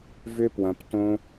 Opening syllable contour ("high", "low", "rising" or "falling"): high